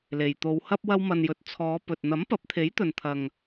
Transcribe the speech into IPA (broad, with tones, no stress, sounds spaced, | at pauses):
l e˨˩ j t̪ o˨˧ w h ɐ˥ p̚ w ɐ˧ w m ɐ˨ n j ɵ˨ t̚ t͡sʰ ɔː˨˧ p ɵ˨ t̚ n̪ ɐ˨˥ m p ɐ˨˥ p̚ t̪ʰ e˨˥ j t̪ ɵ˨ n t̪ʰ ɐ˨ ŋ